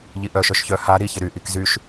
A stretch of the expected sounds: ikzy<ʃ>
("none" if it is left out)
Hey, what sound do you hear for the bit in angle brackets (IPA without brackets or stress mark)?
ʃ